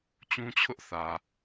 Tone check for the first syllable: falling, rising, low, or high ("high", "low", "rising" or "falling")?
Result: high